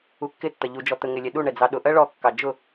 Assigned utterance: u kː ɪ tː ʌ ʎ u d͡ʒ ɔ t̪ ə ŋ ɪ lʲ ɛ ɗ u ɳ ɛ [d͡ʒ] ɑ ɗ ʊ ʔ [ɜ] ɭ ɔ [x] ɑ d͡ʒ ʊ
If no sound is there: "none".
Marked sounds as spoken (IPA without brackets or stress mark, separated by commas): d͡z, ɜ, kː